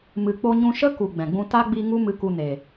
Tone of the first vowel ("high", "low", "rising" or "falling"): low